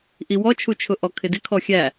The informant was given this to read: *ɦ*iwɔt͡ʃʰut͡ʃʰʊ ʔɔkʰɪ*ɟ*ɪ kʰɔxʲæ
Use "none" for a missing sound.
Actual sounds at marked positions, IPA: ʔ, d

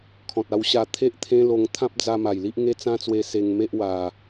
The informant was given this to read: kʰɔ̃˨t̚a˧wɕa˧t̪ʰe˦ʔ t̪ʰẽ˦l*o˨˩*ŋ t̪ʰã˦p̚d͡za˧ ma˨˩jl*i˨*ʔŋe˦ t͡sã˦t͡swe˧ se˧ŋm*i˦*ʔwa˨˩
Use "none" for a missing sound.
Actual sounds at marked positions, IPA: o˧, i˦, e˦

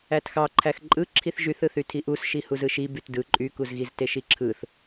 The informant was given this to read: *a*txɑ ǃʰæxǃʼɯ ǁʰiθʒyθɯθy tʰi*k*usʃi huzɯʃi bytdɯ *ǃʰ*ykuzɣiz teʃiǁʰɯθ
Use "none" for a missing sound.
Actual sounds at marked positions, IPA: æ, ʔ, ǃʼ

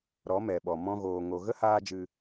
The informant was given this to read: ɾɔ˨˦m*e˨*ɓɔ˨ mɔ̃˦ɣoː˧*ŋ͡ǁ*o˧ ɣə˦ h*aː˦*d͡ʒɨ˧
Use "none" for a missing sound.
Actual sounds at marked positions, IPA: ɛ˨, ŋ, aː˦

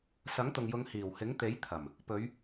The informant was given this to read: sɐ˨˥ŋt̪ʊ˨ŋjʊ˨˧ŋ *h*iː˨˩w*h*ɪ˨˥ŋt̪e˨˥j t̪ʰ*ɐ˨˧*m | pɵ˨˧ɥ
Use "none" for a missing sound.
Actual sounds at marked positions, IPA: h, h, ɐ˨˩

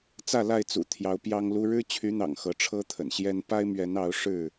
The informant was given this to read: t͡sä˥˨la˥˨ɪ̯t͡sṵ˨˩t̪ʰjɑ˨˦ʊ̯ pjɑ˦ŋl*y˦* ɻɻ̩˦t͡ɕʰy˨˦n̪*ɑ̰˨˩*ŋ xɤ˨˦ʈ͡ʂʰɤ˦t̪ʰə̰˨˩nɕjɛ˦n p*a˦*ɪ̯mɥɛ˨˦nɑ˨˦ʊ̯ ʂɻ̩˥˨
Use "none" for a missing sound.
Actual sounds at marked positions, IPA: u˦, ɑ̰˨˩, a˦

